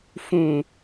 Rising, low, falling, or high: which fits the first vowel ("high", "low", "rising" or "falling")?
low